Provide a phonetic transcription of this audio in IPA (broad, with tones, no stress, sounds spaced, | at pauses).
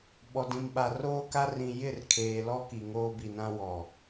ɓ ɔ˨ d ĩ˨ m ɓ a˨ r oː˦ k a˦ r ĩ˨ j ɪ˦˨ r kʰ eː˨ l ɔ˦ k i˨ ŋ oː˦ b i˨ n ã˦ w ɔ˨